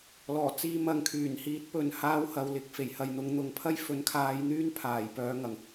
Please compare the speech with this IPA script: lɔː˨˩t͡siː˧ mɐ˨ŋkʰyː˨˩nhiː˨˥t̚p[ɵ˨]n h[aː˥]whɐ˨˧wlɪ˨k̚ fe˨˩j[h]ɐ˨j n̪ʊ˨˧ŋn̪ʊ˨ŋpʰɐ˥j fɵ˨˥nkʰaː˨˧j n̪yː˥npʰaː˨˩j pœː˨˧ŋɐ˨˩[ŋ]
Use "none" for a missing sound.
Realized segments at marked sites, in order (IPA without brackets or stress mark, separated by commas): ɵ˨, aː˥, h, ŋ